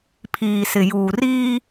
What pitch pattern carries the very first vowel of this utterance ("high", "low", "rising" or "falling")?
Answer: low